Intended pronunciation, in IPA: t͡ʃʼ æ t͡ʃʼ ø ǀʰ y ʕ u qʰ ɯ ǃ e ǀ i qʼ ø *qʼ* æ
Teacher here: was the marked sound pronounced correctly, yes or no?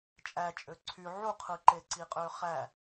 no